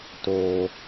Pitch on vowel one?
high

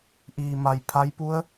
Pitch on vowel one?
low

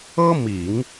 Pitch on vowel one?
high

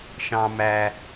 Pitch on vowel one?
low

